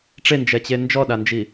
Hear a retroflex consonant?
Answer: yes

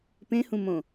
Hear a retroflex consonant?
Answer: no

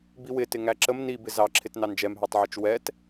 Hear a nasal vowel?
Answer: no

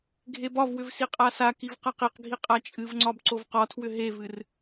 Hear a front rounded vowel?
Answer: yes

